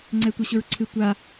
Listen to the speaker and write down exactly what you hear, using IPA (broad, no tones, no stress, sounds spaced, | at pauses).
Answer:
ŋ͡ǀ ɛ tʷ ʌ ɕ ʊ ɹ ǀʰ ɨ tʷ a